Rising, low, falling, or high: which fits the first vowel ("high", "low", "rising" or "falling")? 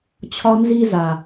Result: high